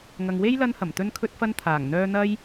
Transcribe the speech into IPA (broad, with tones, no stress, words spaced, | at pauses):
ŋɐ˨ŋwe˥j lɐ˥nhɐ˨˩m t̪ɵ˥nkʰɵ˥t̚fɐ˥n t̪ʰaː˨˩ŋn̪œː˥ n̪ɐ˥j